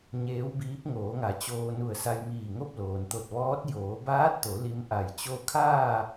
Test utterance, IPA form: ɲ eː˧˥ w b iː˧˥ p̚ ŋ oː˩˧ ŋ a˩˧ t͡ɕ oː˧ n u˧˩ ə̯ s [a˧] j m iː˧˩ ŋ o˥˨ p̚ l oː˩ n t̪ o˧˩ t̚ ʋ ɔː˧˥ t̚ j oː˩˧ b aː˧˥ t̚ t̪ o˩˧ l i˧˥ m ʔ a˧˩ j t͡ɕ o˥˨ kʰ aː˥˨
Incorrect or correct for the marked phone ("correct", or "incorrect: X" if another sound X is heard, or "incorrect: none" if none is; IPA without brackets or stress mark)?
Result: correct